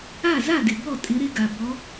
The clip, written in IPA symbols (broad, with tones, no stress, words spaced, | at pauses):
a˥˩za˥˩dɪ˩ bɔ˥˩ tʼɪ˨˦ɾɪ˨˦ɡa˩ bɔ˨˦